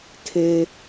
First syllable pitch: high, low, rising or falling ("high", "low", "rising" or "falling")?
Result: low